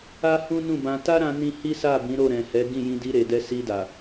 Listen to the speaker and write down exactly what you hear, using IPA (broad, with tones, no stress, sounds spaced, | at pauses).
a˦ h ũ˦ n ũ˦˨ b ã˧ t a˦ ɾ ã˧ n ĩ˧ h i˦ s a˦˨ b ĩ˨˦ ɾ o˦˨ ɾ ɛ̃˨ h ɛ˨˦ ɡ ĩ˦˨ j ĩ˧ d i˧ ɾ e˨ d ɛ˧ s i˧ d a˨